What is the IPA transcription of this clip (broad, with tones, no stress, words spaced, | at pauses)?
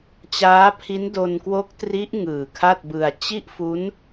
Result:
t͡ɕaː˦˥pʰi˦˥n do˧nkwo˦˥k̚tri˦˥ʔ ŋɯː˨˩kʰa˥˩t̚bɯ˧a̯ t͡ɕi˥˩ʔfu˦˥n